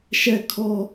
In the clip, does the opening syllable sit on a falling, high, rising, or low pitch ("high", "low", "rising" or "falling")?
high